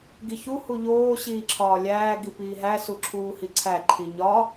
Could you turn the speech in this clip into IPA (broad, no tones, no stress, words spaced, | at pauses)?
ɡiçu huʎoː ɕiːǁʰɒːlʲæː ɡipiːɦæ suǁʰuːhiǀʰæ ǃʰiɲɒ